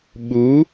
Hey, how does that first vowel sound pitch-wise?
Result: rising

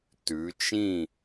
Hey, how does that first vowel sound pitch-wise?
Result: rising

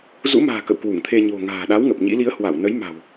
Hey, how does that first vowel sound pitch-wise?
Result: rising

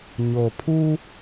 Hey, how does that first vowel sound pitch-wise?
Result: low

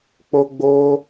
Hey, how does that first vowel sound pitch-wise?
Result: high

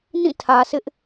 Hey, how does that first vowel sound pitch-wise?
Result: falling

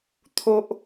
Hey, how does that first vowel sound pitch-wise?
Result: low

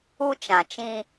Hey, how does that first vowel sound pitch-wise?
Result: high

